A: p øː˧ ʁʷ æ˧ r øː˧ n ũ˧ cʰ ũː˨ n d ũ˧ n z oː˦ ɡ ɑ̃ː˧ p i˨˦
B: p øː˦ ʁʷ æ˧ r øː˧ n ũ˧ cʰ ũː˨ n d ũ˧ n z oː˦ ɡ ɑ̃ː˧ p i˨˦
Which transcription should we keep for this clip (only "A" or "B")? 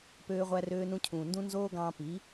A